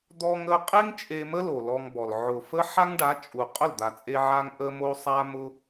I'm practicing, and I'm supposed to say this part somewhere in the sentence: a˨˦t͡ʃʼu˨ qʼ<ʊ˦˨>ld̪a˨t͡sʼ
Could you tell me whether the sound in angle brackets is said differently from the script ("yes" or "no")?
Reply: no